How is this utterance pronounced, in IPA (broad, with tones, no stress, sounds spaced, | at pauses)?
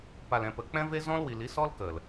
p a˨ l ɛ̃˨ p ə˨ k͡p ɛ̃˦ v e˦ z ɔ̃˧ l w i˨ l i˨˦ s ɔ˦ l k ə˨ l